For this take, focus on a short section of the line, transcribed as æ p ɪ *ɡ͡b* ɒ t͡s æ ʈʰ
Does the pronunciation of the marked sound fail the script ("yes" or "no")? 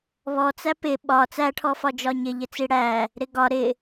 yes